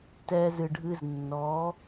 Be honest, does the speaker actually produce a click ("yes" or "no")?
no